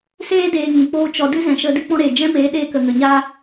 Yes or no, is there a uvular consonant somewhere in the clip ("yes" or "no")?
no